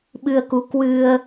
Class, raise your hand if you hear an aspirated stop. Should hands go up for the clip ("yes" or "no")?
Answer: no